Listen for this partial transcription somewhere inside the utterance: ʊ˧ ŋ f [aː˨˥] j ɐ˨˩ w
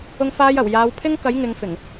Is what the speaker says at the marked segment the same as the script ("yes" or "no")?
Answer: no